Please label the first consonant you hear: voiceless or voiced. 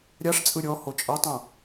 voiced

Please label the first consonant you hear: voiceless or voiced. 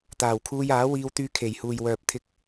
voiceless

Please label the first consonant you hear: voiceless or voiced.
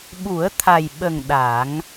voiced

